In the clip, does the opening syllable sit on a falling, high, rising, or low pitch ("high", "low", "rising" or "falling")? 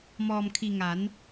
low